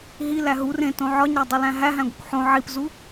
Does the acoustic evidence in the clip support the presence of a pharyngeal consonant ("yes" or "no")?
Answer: yes